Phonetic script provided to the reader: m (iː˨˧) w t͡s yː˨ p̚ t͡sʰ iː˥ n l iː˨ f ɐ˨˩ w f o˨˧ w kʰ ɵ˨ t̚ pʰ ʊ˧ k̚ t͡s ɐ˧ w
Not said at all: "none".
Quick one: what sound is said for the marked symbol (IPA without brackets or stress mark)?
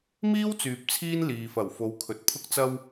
iː˥